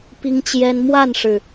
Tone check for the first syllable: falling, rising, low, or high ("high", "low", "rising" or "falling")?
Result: high